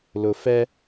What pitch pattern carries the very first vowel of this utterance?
low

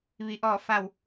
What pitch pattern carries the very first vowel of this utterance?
low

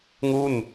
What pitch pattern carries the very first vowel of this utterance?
falling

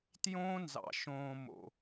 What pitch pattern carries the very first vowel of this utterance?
high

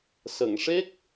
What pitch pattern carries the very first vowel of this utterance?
low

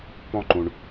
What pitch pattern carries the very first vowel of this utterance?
high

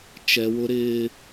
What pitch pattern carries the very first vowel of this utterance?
high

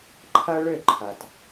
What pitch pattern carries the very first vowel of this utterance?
high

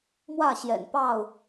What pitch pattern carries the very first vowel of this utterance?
falling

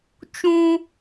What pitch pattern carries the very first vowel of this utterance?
high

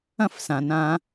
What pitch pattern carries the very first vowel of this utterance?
falling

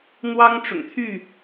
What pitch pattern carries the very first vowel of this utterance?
high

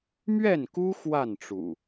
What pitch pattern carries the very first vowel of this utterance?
falling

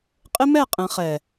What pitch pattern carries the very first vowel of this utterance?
high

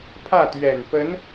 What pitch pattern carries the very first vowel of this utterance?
falling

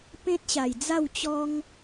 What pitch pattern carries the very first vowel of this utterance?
high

